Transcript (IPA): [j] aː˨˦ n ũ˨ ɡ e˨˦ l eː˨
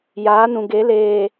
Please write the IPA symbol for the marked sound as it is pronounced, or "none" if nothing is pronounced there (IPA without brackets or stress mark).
j